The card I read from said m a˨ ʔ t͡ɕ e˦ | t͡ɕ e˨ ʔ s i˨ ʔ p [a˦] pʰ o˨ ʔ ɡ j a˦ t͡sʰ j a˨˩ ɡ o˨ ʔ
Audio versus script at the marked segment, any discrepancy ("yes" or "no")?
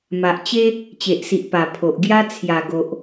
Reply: yes